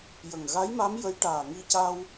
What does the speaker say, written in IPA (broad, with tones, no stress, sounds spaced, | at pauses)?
j ə˨˩ ŋ ɣ a˧˥ j m a˧˥ m j ə˧˥ j ʈ aː˨˩ ŋ i˧ c a˧ w